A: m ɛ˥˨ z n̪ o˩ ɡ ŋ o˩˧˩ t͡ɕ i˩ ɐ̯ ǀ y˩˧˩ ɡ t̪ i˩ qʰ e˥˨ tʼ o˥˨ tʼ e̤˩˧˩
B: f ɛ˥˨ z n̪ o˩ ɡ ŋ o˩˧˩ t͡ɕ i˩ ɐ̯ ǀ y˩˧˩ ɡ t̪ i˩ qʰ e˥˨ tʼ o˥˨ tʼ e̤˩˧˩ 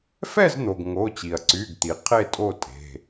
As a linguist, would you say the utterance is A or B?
B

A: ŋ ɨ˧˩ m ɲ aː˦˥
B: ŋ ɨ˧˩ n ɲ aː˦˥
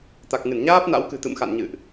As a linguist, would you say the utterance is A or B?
B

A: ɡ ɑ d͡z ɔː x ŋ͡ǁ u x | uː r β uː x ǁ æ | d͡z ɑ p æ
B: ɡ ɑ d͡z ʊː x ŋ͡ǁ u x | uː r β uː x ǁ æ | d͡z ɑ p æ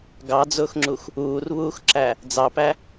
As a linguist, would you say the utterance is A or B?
B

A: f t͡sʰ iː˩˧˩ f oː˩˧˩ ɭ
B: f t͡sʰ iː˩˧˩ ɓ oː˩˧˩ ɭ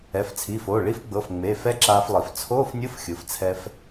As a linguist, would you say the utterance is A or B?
A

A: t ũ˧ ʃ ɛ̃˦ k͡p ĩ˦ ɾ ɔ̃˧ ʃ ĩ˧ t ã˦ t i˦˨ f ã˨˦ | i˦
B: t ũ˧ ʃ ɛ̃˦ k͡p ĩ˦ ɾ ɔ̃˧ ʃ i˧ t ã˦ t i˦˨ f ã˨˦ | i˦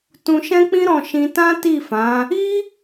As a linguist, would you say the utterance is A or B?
A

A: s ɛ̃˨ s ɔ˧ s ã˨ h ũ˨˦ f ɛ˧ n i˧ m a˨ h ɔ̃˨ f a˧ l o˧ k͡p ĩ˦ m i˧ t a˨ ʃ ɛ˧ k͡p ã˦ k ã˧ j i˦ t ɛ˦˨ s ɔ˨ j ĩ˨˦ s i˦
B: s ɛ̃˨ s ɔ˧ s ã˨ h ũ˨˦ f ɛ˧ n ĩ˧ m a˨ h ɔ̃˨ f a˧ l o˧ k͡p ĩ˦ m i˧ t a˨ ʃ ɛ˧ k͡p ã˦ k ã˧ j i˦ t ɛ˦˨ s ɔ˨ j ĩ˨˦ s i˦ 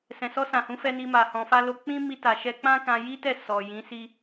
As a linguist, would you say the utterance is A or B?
A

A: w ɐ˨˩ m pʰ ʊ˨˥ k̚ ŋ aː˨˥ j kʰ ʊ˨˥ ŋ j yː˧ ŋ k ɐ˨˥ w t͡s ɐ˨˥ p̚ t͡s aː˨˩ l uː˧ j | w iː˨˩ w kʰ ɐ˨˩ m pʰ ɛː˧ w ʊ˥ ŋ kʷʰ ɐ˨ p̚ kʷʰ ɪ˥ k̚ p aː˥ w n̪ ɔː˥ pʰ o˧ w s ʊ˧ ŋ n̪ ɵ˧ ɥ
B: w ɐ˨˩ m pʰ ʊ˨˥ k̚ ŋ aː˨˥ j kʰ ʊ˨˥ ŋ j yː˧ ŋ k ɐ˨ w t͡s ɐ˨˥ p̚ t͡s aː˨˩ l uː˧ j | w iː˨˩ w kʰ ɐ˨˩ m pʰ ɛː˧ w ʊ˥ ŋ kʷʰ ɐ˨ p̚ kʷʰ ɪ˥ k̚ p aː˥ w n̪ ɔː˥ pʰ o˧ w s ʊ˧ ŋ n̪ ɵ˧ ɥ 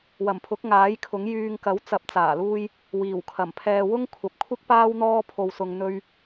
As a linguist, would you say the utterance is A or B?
A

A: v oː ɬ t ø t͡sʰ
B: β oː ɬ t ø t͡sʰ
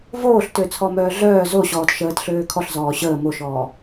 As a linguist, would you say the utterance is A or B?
A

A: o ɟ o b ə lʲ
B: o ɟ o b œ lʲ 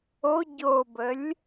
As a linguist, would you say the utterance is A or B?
A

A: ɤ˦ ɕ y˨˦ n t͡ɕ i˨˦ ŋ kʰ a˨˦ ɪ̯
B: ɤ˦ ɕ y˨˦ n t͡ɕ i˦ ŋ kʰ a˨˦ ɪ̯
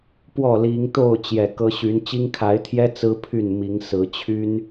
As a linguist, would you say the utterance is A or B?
B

